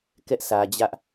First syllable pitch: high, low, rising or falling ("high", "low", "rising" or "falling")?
high